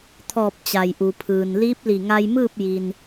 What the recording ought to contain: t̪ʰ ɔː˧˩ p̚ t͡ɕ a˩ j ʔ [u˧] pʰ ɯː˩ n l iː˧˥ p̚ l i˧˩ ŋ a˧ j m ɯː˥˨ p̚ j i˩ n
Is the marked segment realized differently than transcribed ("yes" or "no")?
yes